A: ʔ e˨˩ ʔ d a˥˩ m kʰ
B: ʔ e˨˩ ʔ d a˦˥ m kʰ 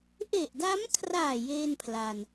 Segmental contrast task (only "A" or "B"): B